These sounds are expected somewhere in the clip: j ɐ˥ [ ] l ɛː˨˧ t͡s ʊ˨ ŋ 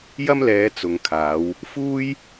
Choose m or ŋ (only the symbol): m